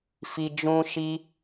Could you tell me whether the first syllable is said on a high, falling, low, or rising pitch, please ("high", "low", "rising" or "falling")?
high